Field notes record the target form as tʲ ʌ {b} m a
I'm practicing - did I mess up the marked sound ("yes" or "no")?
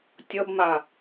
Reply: no